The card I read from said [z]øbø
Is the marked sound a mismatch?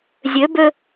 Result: yes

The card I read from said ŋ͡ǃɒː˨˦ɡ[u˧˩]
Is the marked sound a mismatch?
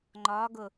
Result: yes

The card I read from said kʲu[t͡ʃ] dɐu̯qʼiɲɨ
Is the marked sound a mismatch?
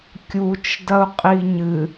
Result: no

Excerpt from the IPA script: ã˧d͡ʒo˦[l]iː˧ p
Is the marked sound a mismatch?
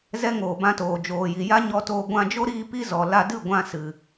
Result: yes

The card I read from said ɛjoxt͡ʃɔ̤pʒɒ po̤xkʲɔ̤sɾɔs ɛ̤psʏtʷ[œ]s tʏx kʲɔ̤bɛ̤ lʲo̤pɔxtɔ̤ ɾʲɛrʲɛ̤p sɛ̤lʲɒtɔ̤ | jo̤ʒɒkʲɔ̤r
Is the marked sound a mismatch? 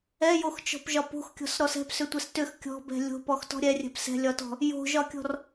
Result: yes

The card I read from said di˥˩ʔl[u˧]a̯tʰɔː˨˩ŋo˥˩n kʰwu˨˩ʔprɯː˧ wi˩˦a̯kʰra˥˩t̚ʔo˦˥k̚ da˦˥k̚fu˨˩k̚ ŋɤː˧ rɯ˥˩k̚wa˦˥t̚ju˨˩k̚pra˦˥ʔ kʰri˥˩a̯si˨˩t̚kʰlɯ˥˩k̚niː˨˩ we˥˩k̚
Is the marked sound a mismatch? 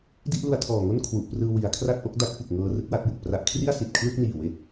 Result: no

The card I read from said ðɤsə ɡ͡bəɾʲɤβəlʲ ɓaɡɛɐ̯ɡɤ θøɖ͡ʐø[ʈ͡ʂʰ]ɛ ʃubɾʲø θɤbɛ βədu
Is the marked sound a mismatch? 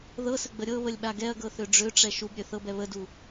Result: yes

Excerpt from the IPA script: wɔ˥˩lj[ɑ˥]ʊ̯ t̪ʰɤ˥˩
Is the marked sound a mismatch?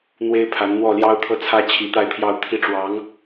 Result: no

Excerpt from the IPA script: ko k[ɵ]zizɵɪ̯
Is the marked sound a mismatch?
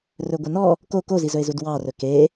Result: yes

